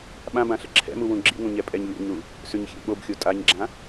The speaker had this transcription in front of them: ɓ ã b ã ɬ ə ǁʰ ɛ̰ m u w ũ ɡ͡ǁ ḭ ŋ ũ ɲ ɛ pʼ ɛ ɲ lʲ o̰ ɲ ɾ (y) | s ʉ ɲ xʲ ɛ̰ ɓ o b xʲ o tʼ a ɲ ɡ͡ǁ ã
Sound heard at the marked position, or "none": u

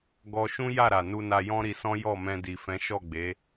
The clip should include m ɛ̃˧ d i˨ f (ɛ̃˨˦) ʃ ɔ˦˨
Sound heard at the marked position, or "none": ɛ̃˨˦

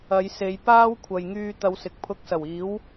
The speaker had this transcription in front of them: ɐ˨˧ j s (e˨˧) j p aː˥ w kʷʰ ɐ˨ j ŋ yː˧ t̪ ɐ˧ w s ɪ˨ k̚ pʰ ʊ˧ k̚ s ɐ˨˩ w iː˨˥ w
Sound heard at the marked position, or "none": e˨˧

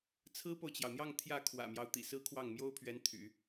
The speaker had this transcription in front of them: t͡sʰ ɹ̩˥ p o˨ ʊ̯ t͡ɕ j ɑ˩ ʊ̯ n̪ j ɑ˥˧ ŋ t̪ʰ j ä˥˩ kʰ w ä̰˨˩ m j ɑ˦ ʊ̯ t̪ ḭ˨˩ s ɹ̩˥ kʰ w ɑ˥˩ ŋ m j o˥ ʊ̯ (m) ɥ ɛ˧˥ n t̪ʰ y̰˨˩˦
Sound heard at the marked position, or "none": pʰ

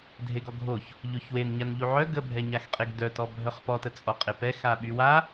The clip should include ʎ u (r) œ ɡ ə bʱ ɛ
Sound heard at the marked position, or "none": ʕ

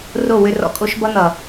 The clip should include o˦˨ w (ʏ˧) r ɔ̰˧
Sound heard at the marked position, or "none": ʏ˧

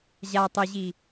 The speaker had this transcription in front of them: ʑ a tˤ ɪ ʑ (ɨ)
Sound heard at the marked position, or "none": i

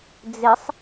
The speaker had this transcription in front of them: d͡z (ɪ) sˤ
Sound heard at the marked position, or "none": ɪ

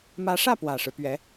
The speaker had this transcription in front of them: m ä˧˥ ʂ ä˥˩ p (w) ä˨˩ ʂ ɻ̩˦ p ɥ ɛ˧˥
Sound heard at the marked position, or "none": w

